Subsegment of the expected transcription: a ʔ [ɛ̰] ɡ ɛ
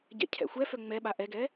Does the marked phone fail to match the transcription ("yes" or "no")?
yes